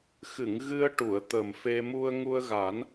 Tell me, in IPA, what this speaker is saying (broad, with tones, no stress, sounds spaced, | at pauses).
x ɨ˨˩˨ ŋ ɣ ɨ˧ ə̯ ʈ u˨˩˨ ə̯ t̪ ə˨˩ m f e˧ m u˧ ə̯ ŋ u˧ ə̯ ɣ a˨˩˦ n